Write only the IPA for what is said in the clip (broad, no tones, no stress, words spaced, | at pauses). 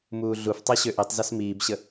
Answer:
muːɮuftˤi ɕøʔitˤzʌs miːbɕə